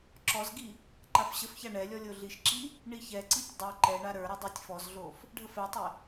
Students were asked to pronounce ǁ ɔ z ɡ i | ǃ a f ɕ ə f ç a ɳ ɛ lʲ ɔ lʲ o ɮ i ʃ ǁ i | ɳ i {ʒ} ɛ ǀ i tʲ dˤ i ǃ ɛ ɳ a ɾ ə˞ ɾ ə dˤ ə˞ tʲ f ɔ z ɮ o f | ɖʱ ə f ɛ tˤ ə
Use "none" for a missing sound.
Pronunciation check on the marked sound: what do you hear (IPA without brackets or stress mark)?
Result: ç